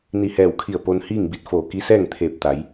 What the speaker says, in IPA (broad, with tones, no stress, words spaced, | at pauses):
ni˧˩hɛː˧˩wkʰi˧˩ə̯ po˧nhiː˥˨ŋbi˧t̚ foː˧˩ki˧˥sɛː˥˨ŋ t̪ʰeː˧˩p̚t̪a˩˧j